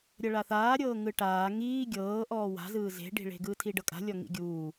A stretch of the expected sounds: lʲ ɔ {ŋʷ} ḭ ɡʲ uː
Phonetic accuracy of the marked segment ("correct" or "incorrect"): incorrect